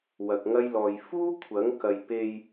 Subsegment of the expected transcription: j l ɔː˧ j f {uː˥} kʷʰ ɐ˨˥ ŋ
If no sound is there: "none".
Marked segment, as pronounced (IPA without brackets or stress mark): uː˥